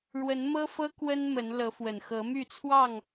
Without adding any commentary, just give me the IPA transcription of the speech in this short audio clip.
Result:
ɻ w ə˨˦ n m ɤ˦ f ɤ˦ k w ə˦ n m ə˨˦ n l ɤ˨˦ f w ə˨˩ n x ɤ˨˦ m y˥˨ t͡sʰ w ɑ˥˨ ŋ

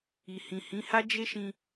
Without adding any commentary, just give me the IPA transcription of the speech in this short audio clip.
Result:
i˨ h ĩ˨ h ĩ˨˦ h a˦ d͡ʒ e˦ ʃ ĩ˧

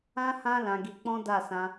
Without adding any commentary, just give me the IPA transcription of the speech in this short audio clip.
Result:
ã˦ h ã˦ l ã˧ ɡ i˧ k͡p ɔ̃˦ d a˦˨ s ã˧

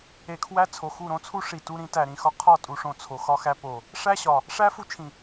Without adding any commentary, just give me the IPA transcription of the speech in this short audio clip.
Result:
e˨ kʰ w æ˦ t͡sʰ o˨ x u˦˨ ɾ õ˦ t͡sʰ u˦ ʂ i˨ t u˦ ɾ ĩ˦ t æ˨ ɾ ĩ˨ x ɒ˦ qʰ ɒ˦˨ tʼ u˨ ʂ õ˨ t͡sʰ o˨ x ɒ˦ x æ˦ p o˨ | ʂ æ˦ ɕ ɒ˨ | ʂ æ˦ f u˦ t͡ʃʰ ĩ˨

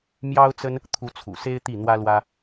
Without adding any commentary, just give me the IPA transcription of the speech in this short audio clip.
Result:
m j ɑ˥ ʊ̯ t͡s ə˥ n | t̪ʰ u˧˥ t͡sʰ ṵ˨˩ s e˥ ɪ̯ t̪ i˥˩ n̪ w ä˥ l w ä˥

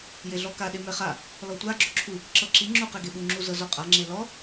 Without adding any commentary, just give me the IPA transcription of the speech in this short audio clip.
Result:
j e ɮ ɔ k a ɗ e m ɛ χ a | l ɔ tʷ a ɡ͡ǁ o ǁʰ u | ǁ ɤ ǁ i ŋ͡ǁ u q ɛ ɡ e ɓ u ŋ͡ǁ u z ɤ z ɔ qʼ a ŋ͡ǁ e l ɔ

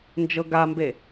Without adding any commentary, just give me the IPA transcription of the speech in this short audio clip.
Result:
n d͡ʒ ɤ ɡ a m b e

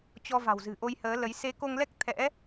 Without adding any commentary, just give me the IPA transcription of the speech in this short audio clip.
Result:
t͡ɕ ɔ˧ v a̤˨˩ w z ɨ̤˨˩ ʔ o˧ j h əː˨˦ l ə˨˦ j s e˨˦ k o˧ ŋ l ɛ˦˥ k̚ t̪ʰ ɛ̰˧˥

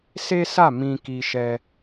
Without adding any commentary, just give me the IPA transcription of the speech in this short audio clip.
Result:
s e˦ s a˦˨ m ĩ˧ k i˧ ʃ ɛ˧

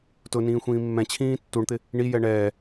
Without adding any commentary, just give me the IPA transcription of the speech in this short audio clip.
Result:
t ʊ n ĩː xʷ ĩː mː ɛ̃ t͡ɕʰ ĩː tː u ɳ t̪ ɪ | ɳ i j ɛ ɳ ɛː

